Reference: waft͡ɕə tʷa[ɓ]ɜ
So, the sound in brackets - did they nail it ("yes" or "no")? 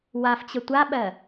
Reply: yes